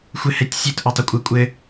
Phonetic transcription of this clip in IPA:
xʷ ɘ h ɛ tʲ sʲ e t ʔ o tˤ ʊ kʷʼ ɘ kʷʼ ɘ

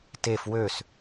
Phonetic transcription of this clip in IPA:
t e f w ø s

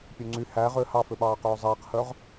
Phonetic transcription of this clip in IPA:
pʲ ø ŋ͡ǀ y h æ ʁ ø h ɑ f ø ɓ ɑː q øː zˤ ɛː q h œ ʁ

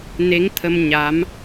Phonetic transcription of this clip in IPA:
n e˧˥ ŋ t̪ʰ ə˧ m ɲ a˧˥ m

